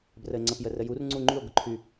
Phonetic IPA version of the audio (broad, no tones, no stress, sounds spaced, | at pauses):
b r ə e̯ ŋ͡ǀ ə p j ə r ə j u r ŋ͡ǀ u ŋ͡ǃ y o̯ ɡ ʊ ǃʰ y